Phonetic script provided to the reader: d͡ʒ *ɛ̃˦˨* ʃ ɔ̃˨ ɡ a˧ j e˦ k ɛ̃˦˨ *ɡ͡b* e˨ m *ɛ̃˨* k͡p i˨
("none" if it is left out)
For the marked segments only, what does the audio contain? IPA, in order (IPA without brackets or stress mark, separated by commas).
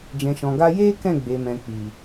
ɛ̃˨, ɡ͡b, ɛ̃˨